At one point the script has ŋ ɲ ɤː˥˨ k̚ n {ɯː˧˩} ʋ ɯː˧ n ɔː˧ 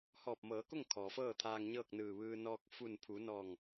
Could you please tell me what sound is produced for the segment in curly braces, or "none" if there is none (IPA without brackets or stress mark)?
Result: ɯː˧˩